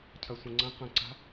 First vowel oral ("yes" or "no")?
yes